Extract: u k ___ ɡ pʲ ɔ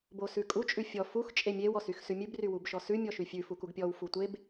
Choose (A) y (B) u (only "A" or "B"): B